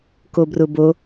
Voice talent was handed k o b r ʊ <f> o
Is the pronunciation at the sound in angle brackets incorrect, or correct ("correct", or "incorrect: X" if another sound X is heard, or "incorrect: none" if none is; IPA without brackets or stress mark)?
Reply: incorrect: b